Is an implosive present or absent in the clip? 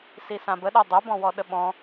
present